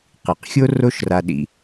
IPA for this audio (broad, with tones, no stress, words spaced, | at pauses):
qi˩qxʲo˥ ro˥ʃra˧ɗḭ˧